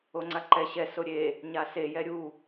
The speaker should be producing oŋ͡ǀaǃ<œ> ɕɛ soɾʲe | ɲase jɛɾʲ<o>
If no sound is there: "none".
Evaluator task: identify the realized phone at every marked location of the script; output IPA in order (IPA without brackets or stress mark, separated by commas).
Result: ɛ, u